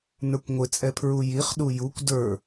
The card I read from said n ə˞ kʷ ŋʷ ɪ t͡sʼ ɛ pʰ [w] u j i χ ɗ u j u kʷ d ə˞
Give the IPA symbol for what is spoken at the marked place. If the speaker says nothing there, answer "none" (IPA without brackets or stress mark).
ɹ